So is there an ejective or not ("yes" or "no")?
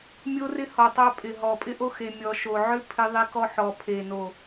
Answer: yes